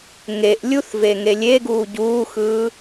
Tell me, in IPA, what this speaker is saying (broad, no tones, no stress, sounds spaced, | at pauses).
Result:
ŋ e ʔ lʲ u θ v e ŋ e lʲ e ɡ uː ɟ uː x ɯː